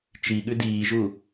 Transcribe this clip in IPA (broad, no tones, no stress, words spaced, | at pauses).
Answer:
t͡ʃi ɠʉdiːʒu